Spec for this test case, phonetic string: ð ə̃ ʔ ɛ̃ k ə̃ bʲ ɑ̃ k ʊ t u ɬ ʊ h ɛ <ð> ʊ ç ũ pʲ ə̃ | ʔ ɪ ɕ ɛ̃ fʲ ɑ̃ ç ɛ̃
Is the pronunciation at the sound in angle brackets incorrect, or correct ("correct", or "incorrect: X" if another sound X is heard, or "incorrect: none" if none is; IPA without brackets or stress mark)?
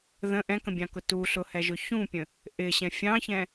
incorrect: ʒ